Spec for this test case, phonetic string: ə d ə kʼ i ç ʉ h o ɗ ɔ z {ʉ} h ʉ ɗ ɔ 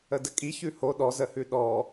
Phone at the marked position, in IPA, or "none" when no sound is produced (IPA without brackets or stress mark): ə